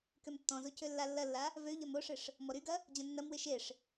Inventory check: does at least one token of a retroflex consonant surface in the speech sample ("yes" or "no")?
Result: yes